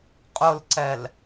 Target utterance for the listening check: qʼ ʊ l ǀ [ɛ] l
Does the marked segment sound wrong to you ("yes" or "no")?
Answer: no